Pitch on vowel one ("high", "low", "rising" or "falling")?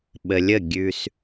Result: low